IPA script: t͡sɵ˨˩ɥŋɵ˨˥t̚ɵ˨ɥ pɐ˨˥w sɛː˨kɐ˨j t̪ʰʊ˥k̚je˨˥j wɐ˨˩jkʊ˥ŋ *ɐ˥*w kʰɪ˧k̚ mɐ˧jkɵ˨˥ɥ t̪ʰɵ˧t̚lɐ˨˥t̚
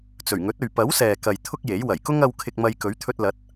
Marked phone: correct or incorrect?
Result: incorrect